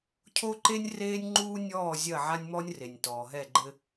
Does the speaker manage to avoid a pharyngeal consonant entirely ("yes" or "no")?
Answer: no